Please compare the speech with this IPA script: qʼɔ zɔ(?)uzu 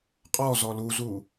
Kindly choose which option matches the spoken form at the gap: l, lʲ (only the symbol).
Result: l